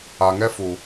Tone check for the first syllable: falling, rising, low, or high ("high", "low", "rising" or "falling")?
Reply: low